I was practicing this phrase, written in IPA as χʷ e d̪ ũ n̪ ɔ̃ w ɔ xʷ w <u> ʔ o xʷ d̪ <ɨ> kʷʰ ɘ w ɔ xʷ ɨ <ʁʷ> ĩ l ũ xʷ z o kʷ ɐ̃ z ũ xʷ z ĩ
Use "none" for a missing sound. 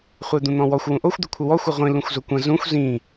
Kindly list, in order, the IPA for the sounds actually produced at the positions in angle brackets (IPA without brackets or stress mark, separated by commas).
ũ, ɨ, ʁʷ